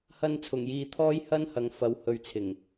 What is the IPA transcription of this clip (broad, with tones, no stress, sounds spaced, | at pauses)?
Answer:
h ɐ˧ n t͡sʰ ʊ˨˩ ŋ j iː˨ t̪ʰ ɔː˥ j h ɐ˥ n h ɐ˨ ŋ f ɐ˨˧ w h ɵ˨ ɥ t͡sʰ ɪ˨˩ ŋ